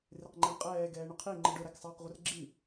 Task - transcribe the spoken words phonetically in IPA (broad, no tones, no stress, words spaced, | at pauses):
rɪqŋ͡ǃɛɳqʼɛː ɡɛːɳʊqʰi ŋ͡ǃəɖʊ ɾæksˤɑːqʁʷərɡ͡ǁi